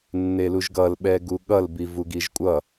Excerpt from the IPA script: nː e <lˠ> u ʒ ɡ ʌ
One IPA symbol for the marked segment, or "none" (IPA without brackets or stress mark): l